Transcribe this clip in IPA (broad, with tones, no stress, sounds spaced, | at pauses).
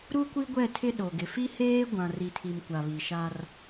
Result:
ɾ u˦ kʷ i˦ ɡʷ ɛ˦˨ tʰ ɪ˦ ɗ o˨ ɡ ɪ˨ f i˦ h eː˦ ɡʷ ã˨ r i˨ tʰ i˨ m kʷ a˨ β i˨ ʃ a˦ r